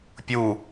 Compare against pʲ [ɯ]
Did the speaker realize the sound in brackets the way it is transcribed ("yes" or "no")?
no